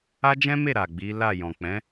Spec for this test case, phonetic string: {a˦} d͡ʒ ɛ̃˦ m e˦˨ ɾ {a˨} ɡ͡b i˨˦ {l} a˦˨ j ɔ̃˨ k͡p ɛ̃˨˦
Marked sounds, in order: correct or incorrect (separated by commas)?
correct, correct, correct